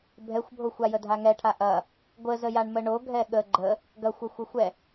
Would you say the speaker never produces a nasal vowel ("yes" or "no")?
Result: yes